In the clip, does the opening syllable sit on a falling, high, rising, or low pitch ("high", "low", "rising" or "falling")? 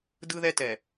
high